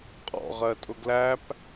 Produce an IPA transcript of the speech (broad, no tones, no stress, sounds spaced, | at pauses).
qʼ ɔ̰ ʁ ɜ tʼ ʊ ɡ l æ p